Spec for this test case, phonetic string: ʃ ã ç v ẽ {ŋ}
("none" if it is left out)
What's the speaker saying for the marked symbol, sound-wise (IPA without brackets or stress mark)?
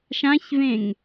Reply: ŋ